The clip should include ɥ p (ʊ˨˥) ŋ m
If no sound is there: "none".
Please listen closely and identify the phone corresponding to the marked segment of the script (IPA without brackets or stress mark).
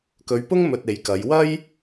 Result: ʊ˥